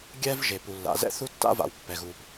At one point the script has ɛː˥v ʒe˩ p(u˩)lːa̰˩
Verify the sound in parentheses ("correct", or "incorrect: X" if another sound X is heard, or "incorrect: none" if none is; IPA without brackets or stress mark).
correct